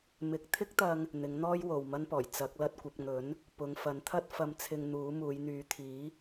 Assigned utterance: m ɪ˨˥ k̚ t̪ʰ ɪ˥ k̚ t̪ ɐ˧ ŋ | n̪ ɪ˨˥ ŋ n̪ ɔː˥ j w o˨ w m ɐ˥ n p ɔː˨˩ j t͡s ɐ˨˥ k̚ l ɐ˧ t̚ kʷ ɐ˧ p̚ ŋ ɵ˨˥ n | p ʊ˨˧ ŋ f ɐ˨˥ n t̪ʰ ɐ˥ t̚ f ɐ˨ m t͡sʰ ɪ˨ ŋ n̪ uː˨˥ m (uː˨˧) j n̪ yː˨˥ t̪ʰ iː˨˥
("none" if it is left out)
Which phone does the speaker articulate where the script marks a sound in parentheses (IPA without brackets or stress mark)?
uː˨˧